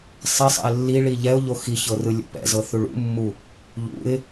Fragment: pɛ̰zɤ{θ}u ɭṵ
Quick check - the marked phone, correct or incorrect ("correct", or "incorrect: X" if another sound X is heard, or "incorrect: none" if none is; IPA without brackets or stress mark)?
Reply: correct